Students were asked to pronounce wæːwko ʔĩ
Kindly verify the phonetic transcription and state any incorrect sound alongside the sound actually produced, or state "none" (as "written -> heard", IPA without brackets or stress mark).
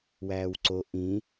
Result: k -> ǀ